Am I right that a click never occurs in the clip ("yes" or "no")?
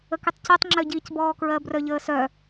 no